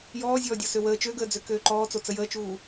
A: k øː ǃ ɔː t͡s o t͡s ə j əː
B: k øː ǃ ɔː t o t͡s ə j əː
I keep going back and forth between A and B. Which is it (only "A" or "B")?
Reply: A